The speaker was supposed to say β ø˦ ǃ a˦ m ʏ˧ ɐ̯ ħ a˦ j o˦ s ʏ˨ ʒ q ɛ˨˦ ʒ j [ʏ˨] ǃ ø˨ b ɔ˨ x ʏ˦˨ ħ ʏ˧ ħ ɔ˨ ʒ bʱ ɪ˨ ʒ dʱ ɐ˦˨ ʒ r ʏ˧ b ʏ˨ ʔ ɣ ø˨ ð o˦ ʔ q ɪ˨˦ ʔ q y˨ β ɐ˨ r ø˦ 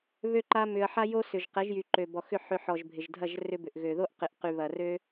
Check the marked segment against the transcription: incorrect: y˨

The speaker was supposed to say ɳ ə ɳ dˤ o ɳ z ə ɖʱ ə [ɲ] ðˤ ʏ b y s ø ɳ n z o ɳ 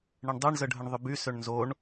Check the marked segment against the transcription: incorrect: ɳ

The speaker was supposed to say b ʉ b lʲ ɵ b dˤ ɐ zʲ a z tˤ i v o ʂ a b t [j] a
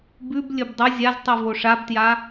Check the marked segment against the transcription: correct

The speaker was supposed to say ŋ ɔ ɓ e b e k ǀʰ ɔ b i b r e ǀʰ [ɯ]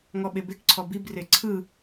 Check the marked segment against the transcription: correct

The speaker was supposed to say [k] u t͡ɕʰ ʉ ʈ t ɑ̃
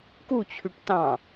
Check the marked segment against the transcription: correct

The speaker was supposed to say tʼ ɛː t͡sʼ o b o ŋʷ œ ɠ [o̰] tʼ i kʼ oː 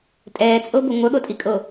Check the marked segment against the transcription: incorrect: o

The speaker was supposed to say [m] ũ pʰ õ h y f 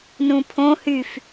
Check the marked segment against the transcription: incorrect: n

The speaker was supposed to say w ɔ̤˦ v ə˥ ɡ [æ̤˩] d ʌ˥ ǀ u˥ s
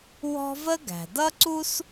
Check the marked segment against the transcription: correct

